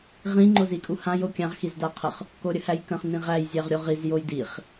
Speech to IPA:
ʁĩ ŋ͡ǃozikʼuhã jokʲãʁ xizdaqʰəχ | koɾʲəhæjkə̃χ nĩʁæj zʲæʁɾʲoʁiz jojdiχ

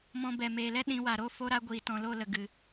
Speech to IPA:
mɔ̃˧bɛ˨ meː˨lɛ˦ ɗĩ˨˦wa˨ ɾo˦ fo˦ɾa˦ɡʷiː˨ tɔ̃˨lo˦˨lə˨ ɡɨ˨

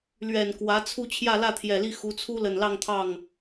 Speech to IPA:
lɥɛ˨˩nkwä˧˥t͡sʰu˥˧ t͡ɕʰjä˥˧lä˥˩t̪ʰjɛ˨˩li˥˩ xu˧˥t͡sʰu˥ lə˨˩nlɑ˥˧ŋt̪ʰɑ˥˩ŋ

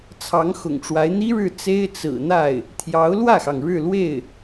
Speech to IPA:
t͡sʰɑ˧˥ŋxʊ̰˨˩ŋʈ͡ʂwa˧˥ɪ̯ n̪i˥ɻɻ̩˥˩ t͡se˥ɪ̯ t͡sɹ̩˨˩n̪a˥˩ɪ̯ | t̪ʰjɑ˧˥ʊ̯lwä˥˩xɑ˩ŋ ɻɻ̩˥˧lwe˥˩ɪ̯

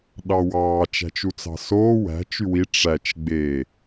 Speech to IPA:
ɗɑwɑː t͡ʃæ̤t͡ʃut͡sɑ̤soː wæ̤ t͡ʃywi ʈ͡ʂæt͡ʃ ɡ͡be

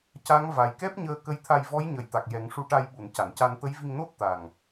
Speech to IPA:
ca˧˥ŋ va˨˩jkɛ˦˥p̚ɲəː˧ kə˧˥jt̪ʰa˧jvɔ˧˥j ɲə˨˩˨jt̪a˨˩k̚ jɛ˨˩˦ŋʂu˧ʈa˧jɓu˨˩˨n ca˨˩˨nca˧n t̪ə˧˥jvi˧ŋno˦˥t̚ t̪a˨˩ŋ

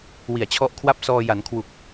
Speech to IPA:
wi˨˩a̯t͡ɕʰɔ˦˥ʔkʰwa˥˩p̚ sɔː˧ ja˩˦n kʰwu˨˩k̚

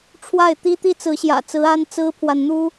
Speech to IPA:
ʈ͡ʂʰwa˥˨ɪ̯t̪i˦ t̪i˦t͡sɹ̩˨˦ɕjä̰˨˩t͡sɹ̩˨˦ a˦nt͡sɹ̩˦pʰwa˨n n̪u˦

